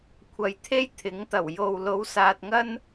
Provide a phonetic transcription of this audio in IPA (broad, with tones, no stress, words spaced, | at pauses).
kʷʰɐ˨jt̪ʰe˥j t̪ʰɪ˨˥ŋt̪ɐ˨˩w jo˨wlo˨˧w saː˨t̚ŋɐ˥n